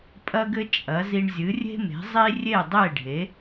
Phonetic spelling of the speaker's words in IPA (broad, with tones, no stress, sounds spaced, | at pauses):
pʼ ɐ˧ ɡ ɘ˧ t͡ʃʼ ɐ˨˦ z i˧ ɳ zʲ ɨ˨˦ rʲ e̤˦ m e̤˨˦ zˤ i˦ rʲ e˦˨ dˤ e˦˨ ɖʱ e˨˦